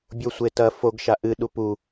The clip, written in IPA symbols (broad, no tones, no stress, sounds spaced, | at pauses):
bʲ o sʷ e t ɐ f o ɡ ʃ a ʔ ɨ ɗ u p u